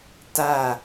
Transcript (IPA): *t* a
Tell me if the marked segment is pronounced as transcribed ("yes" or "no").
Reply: yes